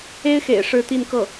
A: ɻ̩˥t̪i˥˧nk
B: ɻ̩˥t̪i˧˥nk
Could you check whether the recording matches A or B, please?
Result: A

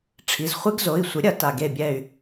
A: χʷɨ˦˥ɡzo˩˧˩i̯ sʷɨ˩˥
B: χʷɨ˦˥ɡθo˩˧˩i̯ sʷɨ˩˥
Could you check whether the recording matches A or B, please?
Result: A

